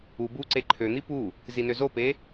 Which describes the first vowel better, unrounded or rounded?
rounded